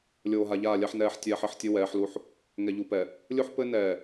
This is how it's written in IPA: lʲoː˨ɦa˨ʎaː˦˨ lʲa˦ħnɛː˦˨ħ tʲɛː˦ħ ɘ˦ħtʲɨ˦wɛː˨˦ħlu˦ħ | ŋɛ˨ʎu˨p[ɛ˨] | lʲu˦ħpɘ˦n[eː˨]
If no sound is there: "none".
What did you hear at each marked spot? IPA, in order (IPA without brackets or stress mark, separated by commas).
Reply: ɛ˨, ɛː˨